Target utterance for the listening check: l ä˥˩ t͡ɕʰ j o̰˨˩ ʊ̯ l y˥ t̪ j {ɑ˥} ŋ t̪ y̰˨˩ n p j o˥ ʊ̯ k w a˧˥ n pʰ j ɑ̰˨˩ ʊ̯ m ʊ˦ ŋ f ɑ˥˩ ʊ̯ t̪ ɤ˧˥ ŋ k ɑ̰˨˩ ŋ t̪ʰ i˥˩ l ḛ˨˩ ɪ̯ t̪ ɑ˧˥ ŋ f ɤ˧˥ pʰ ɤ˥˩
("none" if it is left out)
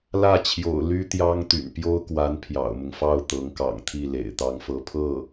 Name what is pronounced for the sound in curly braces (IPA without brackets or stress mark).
ɑ˥